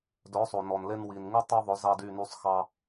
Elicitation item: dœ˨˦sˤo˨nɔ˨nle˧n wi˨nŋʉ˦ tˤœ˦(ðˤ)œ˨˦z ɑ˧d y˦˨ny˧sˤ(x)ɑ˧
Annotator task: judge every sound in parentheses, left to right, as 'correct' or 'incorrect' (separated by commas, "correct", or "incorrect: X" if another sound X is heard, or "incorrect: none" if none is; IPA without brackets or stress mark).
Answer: correct, correct